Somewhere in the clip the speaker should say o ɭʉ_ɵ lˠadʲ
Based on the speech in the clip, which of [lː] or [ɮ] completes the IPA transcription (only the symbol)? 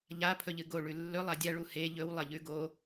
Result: lː